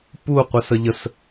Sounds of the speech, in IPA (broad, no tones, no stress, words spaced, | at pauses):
pu qʷɛsəʎəs